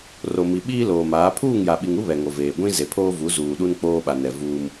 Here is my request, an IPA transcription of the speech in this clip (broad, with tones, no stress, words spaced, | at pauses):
ro˨mi˨ ɓiː˦loː˨maː˨˦ pʰuː˦˨ŋja˨ɓi˨ŋu˦ βɛ˨ŋo˨veː˨ ɡʷĩ˦ ze˨pʰoː˦vu˨˦ zuː˨ɗu˦n k͡poː˦ɓa˨nɛ˨ vuː˦m